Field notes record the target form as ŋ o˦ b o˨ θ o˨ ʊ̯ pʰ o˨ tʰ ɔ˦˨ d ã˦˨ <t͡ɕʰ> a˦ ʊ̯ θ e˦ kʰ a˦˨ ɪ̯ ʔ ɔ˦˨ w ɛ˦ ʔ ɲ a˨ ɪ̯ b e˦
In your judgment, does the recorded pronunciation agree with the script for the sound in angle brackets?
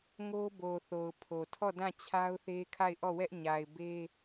yes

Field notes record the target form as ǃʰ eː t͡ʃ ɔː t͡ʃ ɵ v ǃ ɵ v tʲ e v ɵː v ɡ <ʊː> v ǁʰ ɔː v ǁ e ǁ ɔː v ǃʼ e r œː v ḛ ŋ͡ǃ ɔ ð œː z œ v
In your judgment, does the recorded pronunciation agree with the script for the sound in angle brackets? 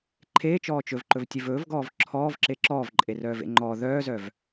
no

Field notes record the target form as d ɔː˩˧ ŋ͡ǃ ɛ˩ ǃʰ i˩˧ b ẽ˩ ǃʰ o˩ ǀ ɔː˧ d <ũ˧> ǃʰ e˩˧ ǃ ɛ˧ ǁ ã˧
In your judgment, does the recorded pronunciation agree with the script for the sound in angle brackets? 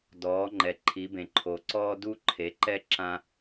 no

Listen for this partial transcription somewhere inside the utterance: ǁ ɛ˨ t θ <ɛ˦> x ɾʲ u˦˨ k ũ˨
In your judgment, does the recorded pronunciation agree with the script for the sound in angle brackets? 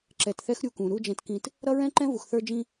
yes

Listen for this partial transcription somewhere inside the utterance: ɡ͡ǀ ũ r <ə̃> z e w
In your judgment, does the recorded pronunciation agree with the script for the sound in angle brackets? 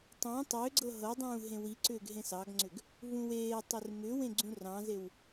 no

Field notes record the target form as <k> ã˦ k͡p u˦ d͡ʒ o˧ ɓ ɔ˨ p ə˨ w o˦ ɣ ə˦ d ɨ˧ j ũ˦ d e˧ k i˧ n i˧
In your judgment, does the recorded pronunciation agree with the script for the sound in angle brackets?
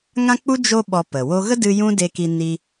no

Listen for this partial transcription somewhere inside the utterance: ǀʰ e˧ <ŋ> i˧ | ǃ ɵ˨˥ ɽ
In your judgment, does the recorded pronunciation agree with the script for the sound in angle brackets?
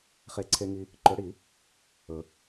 yes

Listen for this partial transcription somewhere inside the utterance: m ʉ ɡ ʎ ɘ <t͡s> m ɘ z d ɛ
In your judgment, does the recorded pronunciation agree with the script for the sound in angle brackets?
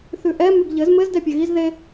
no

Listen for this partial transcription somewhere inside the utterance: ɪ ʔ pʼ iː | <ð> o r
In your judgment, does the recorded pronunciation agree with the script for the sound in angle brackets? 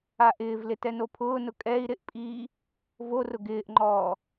no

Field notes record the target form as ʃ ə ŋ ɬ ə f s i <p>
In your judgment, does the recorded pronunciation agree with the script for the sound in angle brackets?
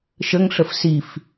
no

